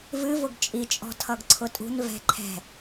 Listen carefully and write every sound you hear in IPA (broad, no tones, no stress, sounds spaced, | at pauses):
v ɨ v ʊ ɡ t͡ʃʼ i t͡ʃʼ ɔ̤ tʰ ʌ ɡ ǀʰ ʊ tʼ ṳ n v ɛ̤ ǃʰ ɛ̤